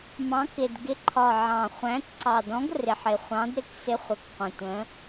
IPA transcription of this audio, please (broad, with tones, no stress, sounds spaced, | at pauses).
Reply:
m ɑ̃˨˦ k ɪ˨˩ d ɡ ɪ˨˦ ǃʰ ɒ˨˩ ʕ ɑ̃˨˩ χʷ æ̃˨˦ t ǀ ɑ˨˩ d ɔ̃˨˦ ɡ r ɪ˨˩ ħ ɪ˨˩ χʷ ɑ̃˨˦ d ɾ ɪ˨˦ k s ɪ˨˦ χʷ ə˨˩ k qʷ ə̃˨˩ tʷ ə̃˨˦